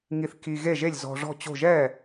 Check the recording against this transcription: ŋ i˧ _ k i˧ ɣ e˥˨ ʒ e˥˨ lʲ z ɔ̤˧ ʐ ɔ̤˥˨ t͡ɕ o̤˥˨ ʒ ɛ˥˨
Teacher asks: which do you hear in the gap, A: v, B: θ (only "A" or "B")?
B